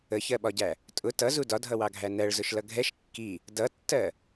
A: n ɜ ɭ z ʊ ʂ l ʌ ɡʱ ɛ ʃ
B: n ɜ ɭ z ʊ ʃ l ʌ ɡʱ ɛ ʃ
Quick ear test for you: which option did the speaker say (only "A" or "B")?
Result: B